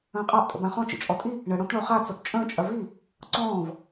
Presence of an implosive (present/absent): absent